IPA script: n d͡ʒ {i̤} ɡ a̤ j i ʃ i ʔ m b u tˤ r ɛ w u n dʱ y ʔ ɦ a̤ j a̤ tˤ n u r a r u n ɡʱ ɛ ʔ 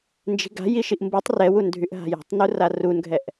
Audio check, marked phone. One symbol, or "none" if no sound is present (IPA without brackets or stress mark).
i̤